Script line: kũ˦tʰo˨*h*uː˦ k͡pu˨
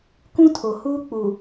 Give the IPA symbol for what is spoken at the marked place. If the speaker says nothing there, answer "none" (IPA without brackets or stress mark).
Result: h